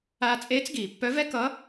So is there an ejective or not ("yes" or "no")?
yes